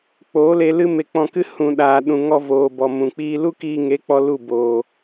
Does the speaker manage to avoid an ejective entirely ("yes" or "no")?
yes